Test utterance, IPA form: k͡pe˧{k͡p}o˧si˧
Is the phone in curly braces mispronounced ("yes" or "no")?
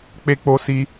no